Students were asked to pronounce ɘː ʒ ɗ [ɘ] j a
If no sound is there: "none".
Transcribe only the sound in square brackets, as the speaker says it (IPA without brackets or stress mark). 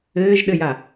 ɘ